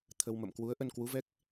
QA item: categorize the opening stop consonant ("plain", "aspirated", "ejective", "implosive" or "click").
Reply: aspirated